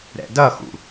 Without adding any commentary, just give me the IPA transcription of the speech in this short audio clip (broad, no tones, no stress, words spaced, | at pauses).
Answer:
ɾɛ̰dʌxṵ